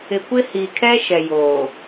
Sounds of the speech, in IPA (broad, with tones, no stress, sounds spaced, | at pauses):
ɪ˨ kʷ ɪ˦ h i˨ kʰ ɛ˦ ʃ ɛ˨ j oː˨